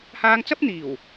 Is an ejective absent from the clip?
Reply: yes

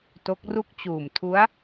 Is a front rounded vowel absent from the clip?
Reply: yes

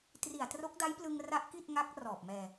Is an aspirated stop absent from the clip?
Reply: yes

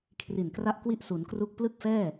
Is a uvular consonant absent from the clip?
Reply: yes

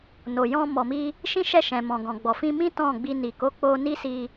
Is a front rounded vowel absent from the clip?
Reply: yes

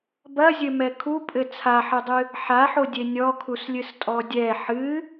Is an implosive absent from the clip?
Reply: yes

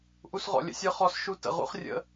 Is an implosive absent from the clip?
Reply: yes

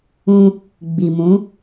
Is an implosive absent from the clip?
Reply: yes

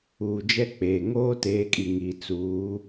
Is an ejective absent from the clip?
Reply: no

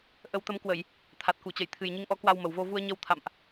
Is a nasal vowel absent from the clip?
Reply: yes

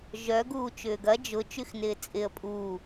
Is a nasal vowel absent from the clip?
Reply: yes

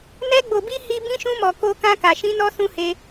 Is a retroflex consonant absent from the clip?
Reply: yes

